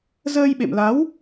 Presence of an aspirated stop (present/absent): absent